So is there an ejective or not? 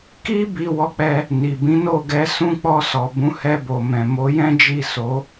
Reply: no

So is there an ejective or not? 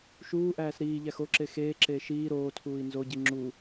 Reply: no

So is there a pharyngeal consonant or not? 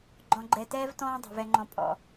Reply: no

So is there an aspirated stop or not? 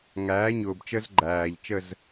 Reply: no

